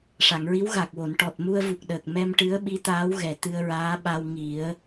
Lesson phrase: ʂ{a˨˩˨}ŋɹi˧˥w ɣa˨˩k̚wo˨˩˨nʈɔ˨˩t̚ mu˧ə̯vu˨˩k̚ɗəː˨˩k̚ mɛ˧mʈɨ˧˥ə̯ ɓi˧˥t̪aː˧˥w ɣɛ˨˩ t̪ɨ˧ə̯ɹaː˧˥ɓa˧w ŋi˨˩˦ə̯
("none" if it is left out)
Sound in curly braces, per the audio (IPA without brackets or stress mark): a˨˩˨